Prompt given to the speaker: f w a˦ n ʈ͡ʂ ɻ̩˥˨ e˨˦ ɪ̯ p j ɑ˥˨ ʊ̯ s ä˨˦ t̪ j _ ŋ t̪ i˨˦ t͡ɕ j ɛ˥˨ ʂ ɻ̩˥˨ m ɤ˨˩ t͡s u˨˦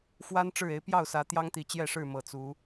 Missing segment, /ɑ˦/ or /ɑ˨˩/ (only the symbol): ɑ˦